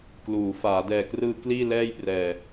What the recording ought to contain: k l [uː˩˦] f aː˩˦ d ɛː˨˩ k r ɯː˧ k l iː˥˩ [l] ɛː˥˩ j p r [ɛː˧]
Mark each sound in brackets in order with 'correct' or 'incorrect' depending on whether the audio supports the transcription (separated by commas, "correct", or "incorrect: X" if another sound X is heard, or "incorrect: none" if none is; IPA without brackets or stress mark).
correct, correct, correct